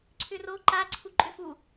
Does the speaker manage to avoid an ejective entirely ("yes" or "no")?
no